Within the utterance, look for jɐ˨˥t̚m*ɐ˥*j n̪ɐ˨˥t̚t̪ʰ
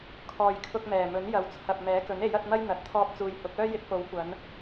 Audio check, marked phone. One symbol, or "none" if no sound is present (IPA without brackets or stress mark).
ɐ˥